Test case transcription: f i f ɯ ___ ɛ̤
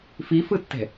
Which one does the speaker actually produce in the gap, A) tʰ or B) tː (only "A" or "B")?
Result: B